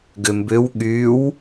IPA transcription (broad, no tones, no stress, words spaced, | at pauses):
ɡʏmbʏw ɠyw